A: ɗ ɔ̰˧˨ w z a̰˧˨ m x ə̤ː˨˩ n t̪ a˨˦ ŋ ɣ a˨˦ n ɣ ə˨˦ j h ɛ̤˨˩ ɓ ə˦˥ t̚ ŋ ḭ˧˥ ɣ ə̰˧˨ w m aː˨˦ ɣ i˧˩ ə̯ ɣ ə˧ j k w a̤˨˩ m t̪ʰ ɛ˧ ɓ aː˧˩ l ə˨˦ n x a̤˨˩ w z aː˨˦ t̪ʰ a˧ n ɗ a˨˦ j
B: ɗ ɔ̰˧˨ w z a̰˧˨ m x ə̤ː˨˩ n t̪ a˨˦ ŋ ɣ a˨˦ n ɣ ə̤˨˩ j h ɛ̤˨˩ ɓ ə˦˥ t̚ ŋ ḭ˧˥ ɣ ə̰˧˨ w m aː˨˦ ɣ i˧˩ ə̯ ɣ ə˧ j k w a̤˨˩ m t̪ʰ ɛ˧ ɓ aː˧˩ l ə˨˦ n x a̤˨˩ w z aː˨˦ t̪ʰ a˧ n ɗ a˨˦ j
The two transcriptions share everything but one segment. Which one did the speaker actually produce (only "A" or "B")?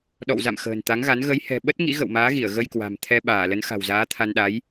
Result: A